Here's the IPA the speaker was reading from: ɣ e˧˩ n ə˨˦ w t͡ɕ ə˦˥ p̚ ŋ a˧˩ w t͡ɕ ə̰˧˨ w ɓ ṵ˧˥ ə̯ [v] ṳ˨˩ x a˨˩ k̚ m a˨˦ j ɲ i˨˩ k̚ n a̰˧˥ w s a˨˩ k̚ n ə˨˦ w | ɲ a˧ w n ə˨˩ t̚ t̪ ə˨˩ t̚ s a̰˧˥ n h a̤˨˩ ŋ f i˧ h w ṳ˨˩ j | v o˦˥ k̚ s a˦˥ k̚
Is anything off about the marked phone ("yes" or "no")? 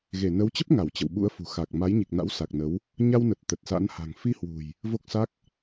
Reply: yes